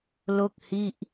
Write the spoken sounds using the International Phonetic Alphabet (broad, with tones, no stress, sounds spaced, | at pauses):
l o˥˩ k̚ h i˥˩ ʔ